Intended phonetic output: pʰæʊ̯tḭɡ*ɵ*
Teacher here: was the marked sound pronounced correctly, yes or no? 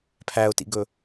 yes